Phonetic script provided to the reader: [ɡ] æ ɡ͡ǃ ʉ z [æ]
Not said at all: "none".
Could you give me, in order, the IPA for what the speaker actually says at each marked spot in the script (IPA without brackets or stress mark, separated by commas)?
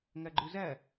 ŋ, æ